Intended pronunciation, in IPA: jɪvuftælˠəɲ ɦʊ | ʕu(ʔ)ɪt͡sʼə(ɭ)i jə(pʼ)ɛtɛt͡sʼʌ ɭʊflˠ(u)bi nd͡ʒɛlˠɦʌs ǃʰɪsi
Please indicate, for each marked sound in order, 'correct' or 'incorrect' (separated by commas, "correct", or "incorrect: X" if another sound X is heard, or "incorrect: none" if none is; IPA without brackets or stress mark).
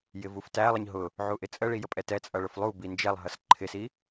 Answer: correct, correct, correct, correct